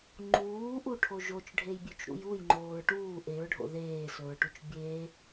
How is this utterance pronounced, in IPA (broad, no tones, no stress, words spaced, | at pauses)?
ŋ͡ǃuːʔuʈʰo ʒot͡ʃɖʱejbʲʉt͡ʃɾṵj ujŋ͡ǃoːɹ ʈuː ʔeɹɖʱo̰ ðeːsɵɹʈut͡ʃ bʲe